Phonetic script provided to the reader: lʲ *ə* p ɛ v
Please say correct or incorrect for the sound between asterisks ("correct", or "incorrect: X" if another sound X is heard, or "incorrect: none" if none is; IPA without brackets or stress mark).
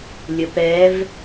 correct